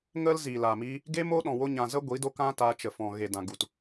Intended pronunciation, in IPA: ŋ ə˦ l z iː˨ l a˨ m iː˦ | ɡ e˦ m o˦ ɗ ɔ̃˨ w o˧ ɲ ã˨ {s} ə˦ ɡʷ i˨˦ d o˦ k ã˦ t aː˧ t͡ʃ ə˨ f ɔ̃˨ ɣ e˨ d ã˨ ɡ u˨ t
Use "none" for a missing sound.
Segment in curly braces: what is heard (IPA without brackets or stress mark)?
z